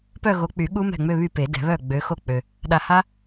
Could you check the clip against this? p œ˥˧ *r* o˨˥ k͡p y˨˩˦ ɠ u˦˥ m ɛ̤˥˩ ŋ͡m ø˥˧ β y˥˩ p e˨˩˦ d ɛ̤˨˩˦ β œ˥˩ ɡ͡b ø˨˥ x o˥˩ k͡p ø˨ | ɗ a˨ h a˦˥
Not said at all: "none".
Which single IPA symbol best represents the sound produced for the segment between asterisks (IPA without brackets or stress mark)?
ɣ